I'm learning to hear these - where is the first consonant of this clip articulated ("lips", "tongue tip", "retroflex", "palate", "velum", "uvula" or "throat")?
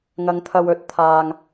velum